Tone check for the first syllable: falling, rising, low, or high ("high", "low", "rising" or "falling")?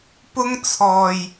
high